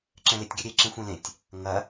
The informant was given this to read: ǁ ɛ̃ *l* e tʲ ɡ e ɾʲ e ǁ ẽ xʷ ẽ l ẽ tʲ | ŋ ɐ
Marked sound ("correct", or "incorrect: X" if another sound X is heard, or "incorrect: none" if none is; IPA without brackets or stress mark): correct